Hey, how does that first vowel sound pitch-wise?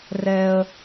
high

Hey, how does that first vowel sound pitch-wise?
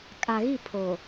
low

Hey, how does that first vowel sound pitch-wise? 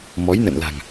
rising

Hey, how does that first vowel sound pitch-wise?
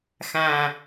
low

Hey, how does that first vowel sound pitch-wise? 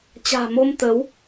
low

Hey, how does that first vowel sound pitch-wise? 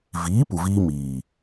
rising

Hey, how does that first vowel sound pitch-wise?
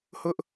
high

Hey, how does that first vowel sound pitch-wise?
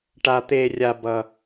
high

